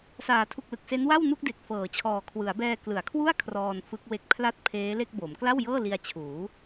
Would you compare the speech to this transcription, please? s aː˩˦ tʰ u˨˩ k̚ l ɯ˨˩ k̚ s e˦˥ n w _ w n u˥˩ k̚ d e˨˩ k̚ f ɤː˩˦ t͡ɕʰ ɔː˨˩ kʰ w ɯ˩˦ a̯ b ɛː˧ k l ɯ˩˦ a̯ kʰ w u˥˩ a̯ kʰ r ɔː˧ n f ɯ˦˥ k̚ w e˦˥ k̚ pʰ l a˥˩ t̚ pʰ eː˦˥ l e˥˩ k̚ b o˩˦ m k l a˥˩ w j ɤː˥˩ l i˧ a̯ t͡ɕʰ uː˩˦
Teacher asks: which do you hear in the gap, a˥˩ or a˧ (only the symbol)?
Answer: a˥˩